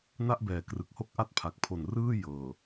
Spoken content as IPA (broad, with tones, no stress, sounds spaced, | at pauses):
n a˥˩ ʔ b ɛː˨˩ k r ɯ˨˩ k̚ h o˦˥ k̚ ʔ a˦˥ t̚ pʰ a˨˩ k̚ pʰ o˨˩ n r ɯː˥˩ j ɤː˨˩